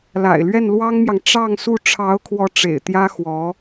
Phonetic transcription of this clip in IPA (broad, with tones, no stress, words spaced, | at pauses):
la̰˨˩ɪ̯lɥɛ˥˩nlwɑ˥ŋmjɑ˨ŋ ʈ͡ʂɑ˥˧ŋsu˥˩ ʈ͡ʂʰɑ˧˥ʊ̯kʰwɔ˧˥ ʈ͡ʂḛ˨˩ɪ̯t̪jä˥ xwɔ˧˥